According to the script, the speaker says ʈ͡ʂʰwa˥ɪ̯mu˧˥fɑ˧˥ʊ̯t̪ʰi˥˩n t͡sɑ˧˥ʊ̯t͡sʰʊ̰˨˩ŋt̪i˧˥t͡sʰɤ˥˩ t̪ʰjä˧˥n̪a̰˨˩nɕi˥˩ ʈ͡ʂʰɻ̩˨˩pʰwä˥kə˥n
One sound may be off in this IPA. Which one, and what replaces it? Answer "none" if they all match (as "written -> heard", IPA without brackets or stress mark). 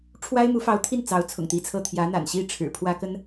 none